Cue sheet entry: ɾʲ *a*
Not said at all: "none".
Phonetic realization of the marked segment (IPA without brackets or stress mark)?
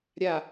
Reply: a